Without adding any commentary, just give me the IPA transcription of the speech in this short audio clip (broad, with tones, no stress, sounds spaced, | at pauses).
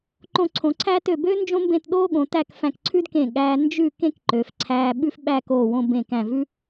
ǃ õ˧ ǀʰ õ˩˧ ǀʰ æː˥ t ø˧˩ b ø˥ n d͡ʒ õ˥ m b ẽ˥˧ t ɗ oː˥ ɠ õ˩˧ t æ˥˧ k f æ̃˧˩ k ǀʰ ʉ˥ d k ẽ˧˩ ɠ æː˧ n d͡ʒ ʉ˥˧ k ẽ˥ k ǃ ø˩˧ f ǀʰ æː˧ ɓ ʉ˥ f ɓ æː˥˧ k oː˧˩ w õ˧ b ẽ˧˩ k æ̃˧˩ v ʉ˥